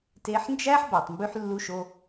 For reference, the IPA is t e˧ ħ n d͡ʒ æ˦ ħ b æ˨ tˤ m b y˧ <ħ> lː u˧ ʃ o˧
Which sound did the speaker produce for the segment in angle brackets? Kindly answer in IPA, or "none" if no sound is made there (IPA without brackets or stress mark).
ħ